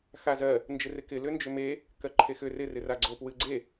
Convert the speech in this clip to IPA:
x a z ɜ | n d͡ʒ ɪ r ɪ k ɪ l ʏ n d͡ʒ ʏ m e | k ɜ ǃʰ e x ʏ r ɪ r ɪ r a ɡ͡ǀ o p w ɨ ɡ͡ǀ e

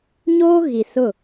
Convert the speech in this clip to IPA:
ɲ oː˦ ɣ i˨ s ʊ˦˨

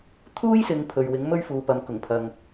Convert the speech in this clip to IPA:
t̪ʰ uː˥ j s ɪ˨˧ ŋ pʰ ɵ˨ ɥ w ɪ˨˥ ŋ m ɵ˥ ɥ f uː˨˧ p ɐ˨˧ m k ʊ˨˩ ŋ pʰ ɐ˨ ŋ

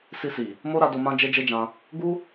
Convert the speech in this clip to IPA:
s i˧ s i˨ | m o˦ ɾ a˧ d o˧ m ã˦ d͡ʒ e˦ d͡ʒ e˦ d͡ʒ ã˧ | ɡ u˦

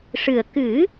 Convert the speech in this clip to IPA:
ʂ ɨ˨˩ ə̯ k ɨ˨˩˦

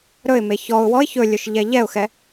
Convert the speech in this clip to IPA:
ɾ ɵ ɪ̯ m e ç ɔ ʊ̯ w ɔ ɪ̯ ç ɵ lʲ ɵ ʃ ʎ ɛ ʎ ɛ ʊ̯ x ɛ

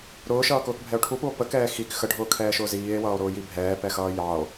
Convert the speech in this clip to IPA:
ɾ ʊː ʃ ʌː k ʊː k bʱ ɛ o̯ ʈʰ u p u o̯ p ə k ɛː x i k x ə ɖʱ ʊː kʰ ɛː ʃ ʊː z iː e̯ w ʌː o̯ ɾ ʊː j i bʱ ɛː p ɛ x ʌː j ɑ o̯

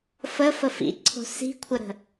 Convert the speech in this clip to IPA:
f ə f ə f ḭ ǀʰ o̤ s i̤ kʷʰ ə ɾ ə̤

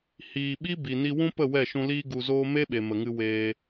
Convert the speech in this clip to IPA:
h iː˨ ɓ i˦ b i˨ n i˧ w ũ˦ p ə˦˨ w ɛ˦˨ ʃ ũ˧ l iː˦ ɡ u˧ z oː˦ m e˦ ɓ e˨ m ə˨ ŋ ɨ˧ w eː˧

